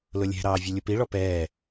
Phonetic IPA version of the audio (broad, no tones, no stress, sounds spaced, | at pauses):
l ʊ lʲ ɛ̤ ɾ ɑː vʲ ʌ lʲ ʊ p i ɭ ɔ p ɛː